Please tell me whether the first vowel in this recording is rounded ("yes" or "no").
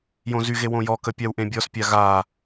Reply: yes